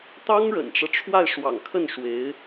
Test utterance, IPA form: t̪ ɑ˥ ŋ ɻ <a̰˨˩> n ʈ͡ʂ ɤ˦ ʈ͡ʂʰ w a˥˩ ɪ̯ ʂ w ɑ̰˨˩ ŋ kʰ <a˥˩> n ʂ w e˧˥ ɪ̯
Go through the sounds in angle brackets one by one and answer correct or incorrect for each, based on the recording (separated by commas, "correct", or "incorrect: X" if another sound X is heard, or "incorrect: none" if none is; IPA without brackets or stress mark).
incorrect: ə̰˨˩, incorrect: ə˥˩